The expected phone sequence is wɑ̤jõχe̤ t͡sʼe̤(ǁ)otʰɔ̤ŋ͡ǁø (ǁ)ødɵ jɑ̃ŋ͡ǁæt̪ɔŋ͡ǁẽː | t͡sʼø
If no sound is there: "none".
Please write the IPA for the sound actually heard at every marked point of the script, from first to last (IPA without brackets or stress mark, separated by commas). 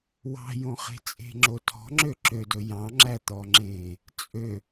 ŋ͡ǁ, ǁ